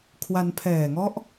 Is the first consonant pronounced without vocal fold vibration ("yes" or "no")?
yes